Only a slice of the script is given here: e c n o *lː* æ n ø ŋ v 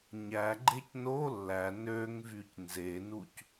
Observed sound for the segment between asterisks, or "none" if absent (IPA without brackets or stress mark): lː